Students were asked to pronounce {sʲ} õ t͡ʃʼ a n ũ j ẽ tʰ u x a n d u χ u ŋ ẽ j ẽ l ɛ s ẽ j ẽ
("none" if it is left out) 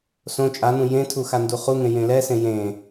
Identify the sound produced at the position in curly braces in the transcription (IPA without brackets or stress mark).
s